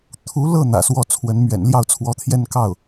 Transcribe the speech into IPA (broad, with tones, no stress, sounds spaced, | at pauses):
t̪ʰ u˧˥ l ɤ˥˩ n̪ ä̰˨˩ s w ɔ˥˩ t͡sʰ w ə˧˥ n m ɥ ɛ̰˨˩ n l j ɑ˥˩ ʊ̯ t͡sʰ w ɔ˧˥ t̪ʰ j ɛ˥˧ n k ɑ˥˩ ʊ̯